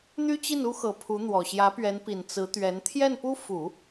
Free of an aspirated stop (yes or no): no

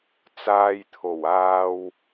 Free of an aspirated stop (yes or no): no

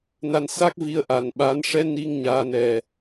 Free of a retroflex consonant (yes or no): no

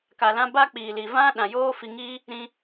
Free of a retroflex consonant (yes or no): yes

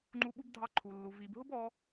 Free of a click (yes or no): no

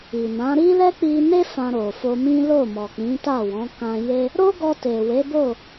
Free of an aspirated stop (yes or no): yes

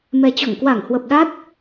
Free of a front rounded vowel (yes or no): yes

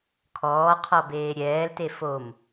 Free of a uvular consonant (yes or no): no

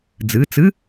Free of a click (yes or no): yes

